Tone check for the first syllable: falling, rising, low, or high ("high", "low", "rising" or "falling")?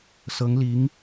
rising